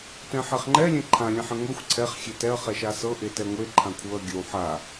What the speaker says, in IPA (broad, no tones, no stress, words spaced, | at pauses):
tɛ̃ħɛχŋ͡ǃɛ lʲɛ̃ǃʰã lʲɛ̃ħɛ̃ŋʷexʷ ǀʰɛχ xʲetɛɐ̯ χɛʃasɤ ʔetɛŋʷe ǃʰãkʷʰɤɐ̯ ɡʲəw ħa